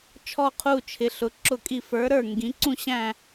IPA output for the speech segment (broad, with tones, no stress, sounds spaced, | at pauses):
t͡ʃʰ ɔ˦˨ qʰ u˦˨ t͡ʃʰ ɪ˩˧ ɬ ʊ˩˧ ǁ ʊ˦˨ kʼ i˦˨ f ə˞˨˥ ɾ ə˞˦˨ ŋ ɡ ĩ˩˧ ǀ ũ˦˨ ɕ æ̃˦˨